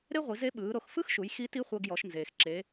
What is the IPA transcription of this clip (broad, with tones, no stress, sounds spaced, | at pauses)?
ɾ e˥ ʁʷ i˩˧ z e˧˥ ɓ ɯː˩˧ ɾ o˩˧ x f ɯ˥ x ʃ u˩˧ j x i˧˥ t i˥ χʷ ɤ˧ ɡ j ɔ˩˧ ʃ n z eː˩ x ǁ e˩˧